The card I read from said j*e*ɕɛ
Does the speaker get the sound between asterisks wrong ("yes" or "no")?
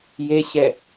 no